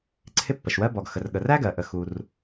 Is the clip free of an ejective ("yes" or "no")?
yes